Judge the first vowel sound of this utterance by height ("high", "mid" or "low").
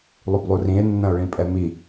high